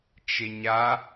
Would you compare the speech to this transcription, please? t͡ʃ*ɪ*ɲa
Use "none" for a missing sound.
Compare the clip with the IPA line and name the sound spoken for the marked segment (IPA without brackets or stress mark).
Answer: ɪ